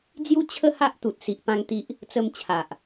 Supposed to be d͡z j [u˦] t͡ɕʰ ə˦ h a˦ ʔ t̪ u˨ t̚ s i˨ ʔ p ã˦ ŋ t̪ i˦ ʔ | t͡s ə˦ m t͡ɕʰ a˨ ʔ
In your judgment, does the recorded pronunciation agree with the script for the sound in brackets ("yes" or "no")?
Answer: yes